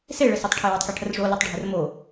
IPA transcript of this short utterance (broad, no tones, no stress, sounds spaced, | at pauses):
s e ɭ ɘ s o tˤ ʈʰ e w ʌ tˤ k e ʈʰ ə r ʐ o l ʌ tˤ ɖʱ ɘ r m o